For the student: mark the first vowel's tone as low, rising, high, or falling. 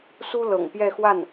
high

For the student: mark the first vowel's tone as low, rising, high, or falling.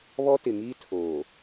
high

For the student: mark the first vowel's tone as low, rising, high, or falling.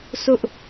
high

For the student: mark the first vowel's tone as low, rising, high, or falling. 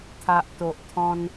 low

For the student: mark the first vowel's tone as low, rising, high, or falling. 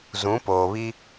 rising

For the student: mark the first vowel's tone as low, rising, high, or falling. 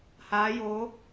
rising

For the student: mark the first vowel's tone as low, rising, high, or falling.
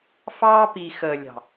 high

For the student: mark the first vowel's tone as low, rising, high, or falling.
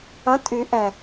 rising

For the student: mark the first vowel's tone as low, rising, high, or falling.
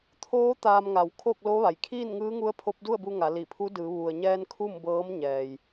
rising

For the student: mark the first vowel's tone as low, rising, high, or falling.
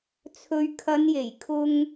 low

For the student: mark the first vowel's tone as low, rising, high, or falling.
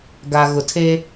low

